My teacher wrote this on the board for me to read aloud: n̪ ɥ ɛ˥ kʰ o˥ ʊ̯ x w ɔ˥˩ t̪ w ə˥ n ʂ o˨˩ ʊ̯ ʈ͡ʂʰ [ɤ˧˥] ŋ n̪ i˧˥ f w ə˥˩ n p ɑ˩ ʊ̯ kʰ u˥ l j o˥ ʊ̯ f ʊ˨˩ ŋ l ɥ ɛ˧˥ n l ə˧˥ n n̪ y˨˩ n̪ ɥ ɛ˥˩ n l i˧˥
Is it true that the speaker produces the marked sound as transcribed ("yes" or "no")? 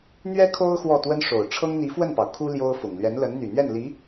no